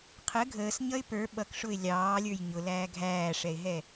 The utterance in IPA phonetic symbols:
qʰ ə ɡʱ əː s ɲ ʌ ɪ̯ p ə˞ ɓ ʌ k ʂ ʊ ɪ̯ lʲ ɑː lʲ ə˞ j ɲ ʊ l æː ɡʱ æː ʂ ɛ ɪ̯ ɦ ɛ

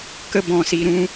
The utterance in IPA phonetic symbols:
k ə˧ b ɔ̃˨ s i˨ ɾ ũ˧

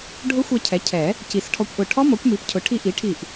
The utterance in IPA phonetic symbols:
ɖʱ ʊ˦˥ xʷ ɛ˧ cʰ ɛ˩˥ cʰ ɛ˨˩˦ | c i˨˩˦ s ʈʰ ɔ˧ kʷ ʔ ʊ˧˩ ʈʰ ɔ˦˥ m ɔ˩˥ kʷ m i˩˥ p cʰ ʊ˩˥ ʈʰ i˧ ʔ i˩˥ ʈʰ i˧˩ ʔ

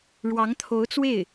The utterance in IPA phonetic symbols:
ɻ w ɑ˧˥ ŋ t̪ʰ o˧˥ ʊ̯ t͡s w e˥˩ ɪ̯

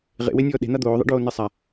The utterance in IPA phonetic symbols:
ʁ ḛ w e nʲ ɔː ɗ e̤ n̪ a d̪ oː ðˤ ɛ̰ ɖ oː n e sˤ a

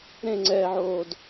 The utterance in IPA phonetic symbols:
ɾ ẽ ŋ͡ǀ ɛː ʕ oː d

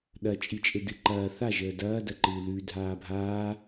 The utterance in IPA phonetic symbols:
ɗ ɐ t͡ʃʼ i t͡ʃʼ e d ɨ ǃ ɐː θ a ʒ əː d ɐː d ɐ ǃ ɨː l ʉ dʱ aː bʱ aː

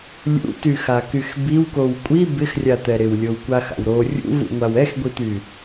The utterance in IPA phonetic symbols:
lʲ ṵ t y x a k y x b i w k o w kʷʼ i b ɪ x rʲ a t̪ ɛ ɾ ɪ w lʲ o w kʷ a x a̰ w ɾ o rʲ ṵ v ṵ ŋʷ a w ɛ x ɡʷ i t̪ y

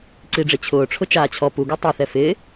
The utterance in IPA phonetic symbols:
ǀ i ɖ͡ʐ e t͡ɕʰ ʊː ʈ͡ʂʰ ʊ t͡ʃ aː t͡ɕʰ ɔ p u ɡ ɔ tˤ ɛ θ ɛ f ɪː

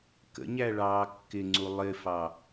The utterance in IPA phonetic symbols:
k ə̰ ɲ æ ɭ ɑː kː ɪ ŋ͡ǀ u lˠ ɪ f ɑ

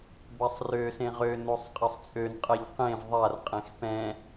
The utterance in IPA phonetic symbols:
b a sˤ r ø s ẽ ʁ ø n o sˤ qʼ a sˤ t͡sʼ ø n qʼ ɛ ʎ q ẽ v ðˤ a r qʼ ẽ x p ɛ̃

